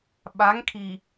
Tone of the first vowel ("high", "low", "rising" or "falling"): rising